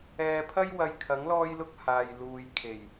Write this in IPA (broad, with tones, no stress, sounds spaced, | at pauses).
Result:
ɛː˧ pʰ ɐ˥ j w ɐ˧ j kʰ ɐ˨˥ ŋ l ɔː˥ j l ʊ˥ k̚ h aː˨ j l uː˨ j kʰ e˨˩ j